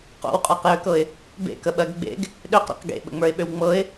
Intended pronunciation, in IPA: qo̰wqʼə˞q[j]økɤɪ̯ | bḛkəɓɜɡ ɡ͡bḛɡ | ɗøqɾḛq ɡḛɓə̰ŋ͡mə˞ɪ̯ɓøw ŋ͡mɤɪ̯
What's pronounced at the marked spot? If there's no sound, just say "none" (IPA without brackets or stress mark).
j